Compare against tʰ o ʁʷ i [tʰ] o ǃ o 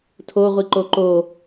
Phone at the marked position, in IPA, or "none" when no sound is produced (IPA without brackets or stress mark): ǃ